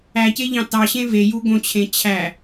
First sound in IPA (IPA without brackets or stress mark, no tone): æ